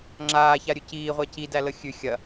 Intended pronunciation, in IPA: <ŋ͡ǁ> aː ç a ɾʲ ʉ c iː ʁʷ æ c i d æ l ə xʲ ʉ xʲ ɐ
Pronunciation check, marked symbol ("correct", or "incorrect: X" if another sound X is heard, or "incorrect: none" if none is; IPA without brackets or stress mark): correct